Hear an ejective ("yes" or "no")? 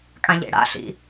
yes